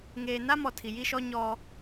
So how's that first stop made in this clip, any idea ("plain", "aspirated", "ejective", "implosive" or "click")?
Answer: aspirated